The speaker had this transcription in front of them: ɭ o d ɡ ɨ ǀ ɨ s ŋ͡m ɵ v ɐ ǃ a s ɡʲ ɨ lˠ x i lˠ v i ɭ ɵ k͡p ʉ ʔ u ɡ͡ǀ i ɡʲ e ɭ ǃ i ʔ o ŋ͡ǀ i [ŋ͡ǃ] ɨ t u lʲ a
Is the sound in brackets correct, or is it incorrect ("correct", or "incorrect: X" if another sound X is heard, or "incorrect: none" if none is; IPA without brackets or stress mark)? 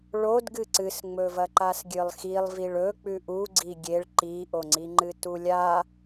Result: correct